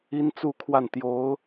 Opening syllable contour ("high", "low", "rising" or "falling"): high